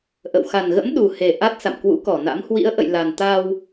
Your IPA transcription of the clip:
ʔə̰˧˨w xa˨˩nɣə̰˧˥m ɗu˨˩he˨˩ ʔa˦˥t̚ sa̰˧˨mkwṵ˧˥kɔ˧˩na̰˧˥m hwḭ˧˥ə̯ʔə̰˧˨jla˨˩n t̪a˧w

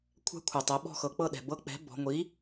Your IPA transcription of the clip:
kʷʰɛ̤˧˥kʷʰɛ˩tˤɛ˩˧ ɓɔ̤˥˨xɤ˩ k͡pɤ˥˨ɗɛ̤˩ bɤ˧˥k͡pɛ̤˩˥ bɔ̤˩˧ŋʷi˩˥

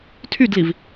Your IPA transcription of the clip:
tʰydliv

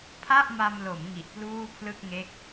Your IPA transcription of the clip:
pʰa˥˩ʔma˧mlo˩˦m ŋi˨˩ʔpluː˥˩pʰlɯ˥˩k̚ ŋe˦˥k̚

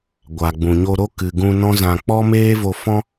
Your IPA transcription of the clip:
ɡʷa˨ ɡ͡bũ˨ɲo˧ɾo˦ kɨ˨ɡũ˧ nɔ̃˦zã˧ k͡pɔ˦meː˦vo˧fɔ̃˦

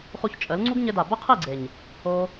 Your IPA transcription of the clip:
χu˧çt͡ʃʼə˨˦l ŋ͡ǀu˦ɡɲɘ˧da˨ bə˦qʰi˦˨ɡ͡ǀe˨ɲ | o˧

